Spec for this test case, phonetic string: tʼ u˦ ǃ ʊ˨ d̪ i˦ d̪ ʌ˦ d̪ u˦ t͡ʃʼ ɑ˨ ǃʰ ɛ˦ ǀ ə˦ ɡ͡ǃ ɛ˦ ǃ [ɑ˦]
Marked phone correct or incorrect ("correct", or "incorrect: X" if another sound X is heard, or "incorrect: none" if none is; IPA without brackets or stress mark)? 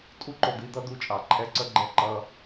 incorrect: ʌ˦